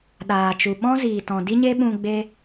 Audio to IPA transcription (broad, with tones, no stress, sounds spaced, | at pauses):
ɗ aː˨ t͡ʃ u˨ ɓ ɔ̃˦ z iː˨ t ɔ̃˨ d i˦ ɲ e˦ ɓ ũ˧ ɡ͡b e˦